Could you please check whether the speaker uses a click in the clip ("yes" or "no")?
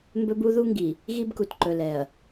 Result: yes